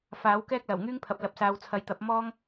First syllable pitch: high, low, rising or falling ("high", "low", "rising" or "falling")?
rising